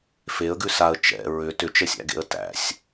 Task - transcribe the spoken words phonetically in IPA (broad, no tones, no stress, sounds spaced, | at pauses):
f e ə̯ ɡ ʉ s a ə̯ t͡ʃ ɛ̰ ɹ ʏ t ʏ t͡ʃ ɛ sʲ æ̰ ɡ ḛ ə̯ t æ̰ sʲ